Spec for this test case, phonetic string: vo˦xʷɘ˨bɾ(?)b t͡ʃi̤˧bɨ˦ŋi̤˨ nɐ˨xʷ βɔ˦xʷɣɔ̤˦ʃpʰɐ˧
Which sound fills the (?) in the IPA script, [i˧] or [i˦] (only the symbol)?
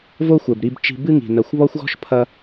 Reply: i˧